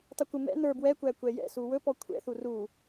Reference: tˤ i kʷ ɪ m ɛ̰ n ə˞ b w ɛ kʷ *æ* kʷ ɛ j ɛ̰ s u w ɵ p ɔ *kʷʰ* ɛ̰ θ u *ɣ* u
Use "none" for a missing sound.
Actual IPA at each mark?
æ, kʷʰ, r

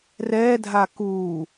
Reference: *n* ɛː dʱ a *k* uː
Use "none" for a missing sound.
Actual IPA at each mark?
r, k

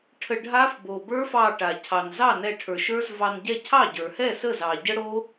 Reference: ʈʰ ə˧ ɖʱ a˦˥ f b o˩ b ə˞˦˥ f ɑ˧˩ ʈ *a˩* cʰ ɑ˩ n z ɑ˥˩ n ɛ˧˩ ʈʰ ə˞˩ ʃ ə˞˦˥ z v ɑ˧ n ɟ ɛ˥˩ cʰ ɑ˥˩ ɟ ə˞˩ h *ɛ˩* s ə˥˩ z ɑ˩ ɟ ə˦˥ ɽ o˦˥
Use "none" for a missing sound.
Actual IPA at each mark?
a˩, ɛ˥˩

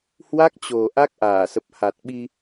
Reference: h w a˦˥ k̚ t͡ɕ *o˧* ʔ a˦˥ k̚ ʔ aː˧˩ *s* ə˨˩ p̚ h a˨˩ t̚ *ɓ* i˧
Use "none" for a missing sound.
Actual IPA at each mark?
o˨˩, s, ɓ

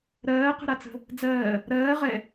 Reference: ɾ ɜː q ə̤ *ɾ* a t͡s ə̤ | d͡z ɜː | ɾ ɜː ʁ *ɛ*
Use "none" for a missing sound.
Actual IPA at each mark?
ɾ, ɛ

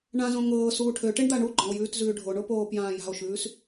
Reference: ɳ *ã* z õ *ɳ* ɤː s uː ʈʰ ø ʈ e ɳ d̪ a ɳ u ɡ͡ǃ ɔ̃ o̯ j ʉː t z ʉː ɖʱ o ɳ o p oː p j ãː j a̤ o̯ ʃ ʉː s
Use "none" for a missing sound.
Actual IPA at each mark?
ã, ŋ

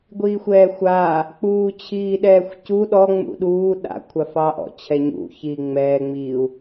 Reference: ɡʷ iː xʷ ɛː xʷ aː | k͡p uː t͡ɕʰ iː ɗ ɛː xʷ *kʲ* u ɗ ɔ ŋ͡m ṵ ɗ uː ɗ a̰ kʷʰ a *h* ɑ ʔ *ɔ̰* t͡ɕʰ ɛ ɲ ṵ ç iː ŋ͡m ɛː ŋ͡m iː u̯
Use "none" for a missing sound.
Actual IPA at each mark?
c, f, ɔ̰

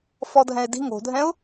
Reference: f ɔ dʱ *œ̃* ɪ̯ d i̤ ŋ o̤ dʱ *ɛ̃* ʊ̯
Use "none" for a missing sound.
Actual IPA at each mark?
ɛ̃, ɛ̃

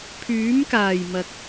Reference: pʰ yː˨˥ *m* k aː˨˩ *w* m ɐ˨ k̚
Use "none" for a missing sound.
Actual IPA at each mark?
m, j

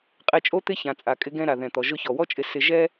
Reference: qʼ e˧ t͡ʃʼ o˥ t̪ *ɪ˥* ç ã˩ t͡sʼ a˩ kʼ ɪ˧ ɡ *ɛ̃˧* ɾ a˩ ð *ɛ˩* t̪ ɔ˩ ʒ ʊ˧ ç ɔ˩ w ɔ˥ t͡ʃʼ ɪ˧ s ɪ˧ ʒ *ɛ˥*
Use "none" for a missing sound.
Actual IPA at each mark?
ɪ˥, ɛ̃˧, ɛ̃˩, ɛ˥

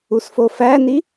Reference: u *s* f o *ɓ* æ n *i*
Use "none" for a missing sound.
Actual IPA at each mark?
s, f, i

